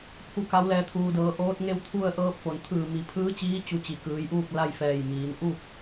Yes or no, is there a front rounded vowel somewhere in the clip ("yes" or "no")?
no